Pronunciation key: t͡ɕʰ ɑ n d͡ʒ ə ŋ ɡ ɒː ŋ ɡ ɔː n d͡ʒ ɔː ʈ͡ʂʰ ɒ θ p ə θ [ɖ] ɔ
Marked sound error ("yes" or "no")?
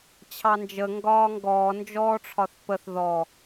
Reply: yes